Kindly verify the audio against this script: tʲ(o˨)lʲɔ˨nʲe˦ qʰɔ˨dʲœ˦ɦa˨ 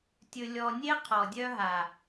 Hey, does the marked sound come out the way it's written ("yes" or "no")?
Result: no